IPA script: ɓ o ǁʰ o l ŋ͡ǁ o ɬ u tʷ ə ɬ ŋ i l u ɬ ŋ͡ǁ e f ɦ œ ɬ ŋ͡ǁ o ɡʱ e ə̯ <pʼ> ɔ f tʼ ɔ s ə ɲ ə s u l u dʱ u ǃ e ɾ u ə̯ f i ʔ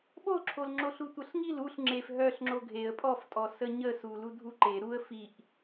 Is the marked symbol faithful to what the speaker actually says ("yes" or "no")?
yes